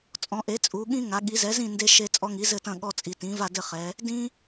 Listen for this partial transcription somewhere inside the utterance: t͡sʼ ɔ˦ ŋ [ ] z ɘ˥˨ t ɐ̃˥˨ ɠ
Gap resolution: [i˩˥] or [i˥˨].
i˩˥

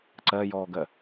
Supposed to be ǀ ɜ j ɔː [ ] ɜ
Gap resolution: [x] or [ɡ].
ɡ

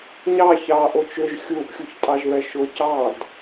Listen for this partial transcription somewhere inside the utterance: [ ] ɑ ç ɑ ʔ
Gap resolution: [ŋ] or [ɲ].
ɲ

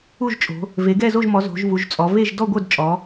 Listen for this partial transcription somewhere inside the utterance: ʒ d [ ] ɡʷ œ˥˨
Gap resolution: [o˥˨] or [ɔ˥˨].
ɔ˥˨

